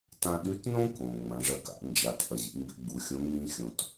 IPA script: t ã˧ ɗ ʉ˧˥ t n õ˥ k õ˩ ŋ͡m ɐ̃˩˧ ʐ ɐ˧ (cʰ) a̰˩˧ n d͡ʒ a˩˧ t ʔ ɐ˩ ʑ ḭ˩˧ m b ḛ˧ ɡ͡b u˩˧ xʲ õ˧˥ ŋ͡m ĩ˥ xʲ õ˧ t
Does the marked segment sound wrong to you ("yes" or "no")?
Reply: yes